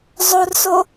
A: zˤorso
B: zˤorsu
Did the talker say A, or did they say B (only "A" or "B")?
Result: A